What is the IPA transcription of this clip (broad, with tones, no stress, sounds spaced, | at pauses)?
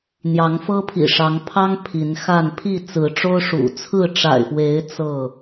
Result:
n̪ j ɑ˨˦ ŋ f ɤ˦ pʰ ḭ˨˩ ʂ ɑ˨˦ ŋ pʰ ɑ˦ ŋ pʰ i˨˦ n x a˥˨ n pʰ i˥˨ t͡s ɹ̩˨˦ ʈ͡ʂ o˦ ʊ̯ ʂ ṵ˨˩ t͡sʰ ɹ̩˥˨ ʈ͡ʂ a̰˨˩ ɪ̯ f w e˨˦ ɪ̯ t͡s ɤ˥˨